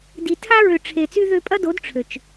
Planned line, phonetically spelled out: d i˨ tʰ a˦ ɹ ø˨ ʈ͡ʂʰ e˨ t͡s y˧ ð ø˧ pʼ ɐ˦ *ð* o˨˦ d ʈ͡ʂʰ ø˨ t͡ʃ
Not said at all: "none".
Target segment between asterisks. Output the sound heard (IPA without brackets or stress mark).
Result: d